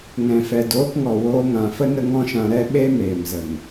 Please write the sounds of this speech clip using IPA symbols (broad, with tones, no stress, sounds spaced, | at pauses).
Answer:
ŋ ɛ̃˨ f ɛ˨ d oː˧ k ŋ ɔ˨ w oː˧ ŋ ã˨ f ə˦ n ə˦ ŋ ɔ̃˦ ʃ ã˧ ɾ ɛ˦ ɓ e˦ m eː˨ m z ə˨ ŋ